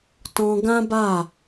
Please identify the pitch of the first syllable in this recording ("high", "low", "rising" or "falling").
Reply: high